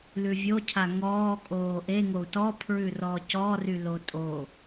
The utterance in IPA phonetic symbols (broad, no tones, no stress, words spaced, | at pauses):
lʉvʲocʰa ŋɔː kʼoːʔeŋou̯ tɔpʰɹʉrɔːc ɔ rylotʼo